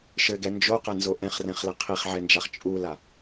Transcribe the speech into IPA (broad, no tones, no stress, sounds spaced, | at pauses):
ʃ ɘ ɡ ɛ n d͡ʒ o q ɘ n z o ʔ ɛ̃ χ r ɛ̃ χ l ɘ qʰ i χ ʕ ɛ n d͡ʒ a χ t͡ʃʼ u l a